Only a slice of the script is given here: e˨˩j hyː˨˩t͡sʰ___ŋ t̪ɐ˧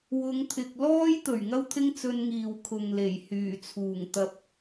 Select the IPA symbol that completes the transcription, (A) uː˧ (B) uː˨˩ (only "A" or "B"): B